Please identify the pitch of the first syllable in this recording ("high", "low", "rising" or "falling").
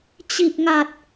low